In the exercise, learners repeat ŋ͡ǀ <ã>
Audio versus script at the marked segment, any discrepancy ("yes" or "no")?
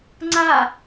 yes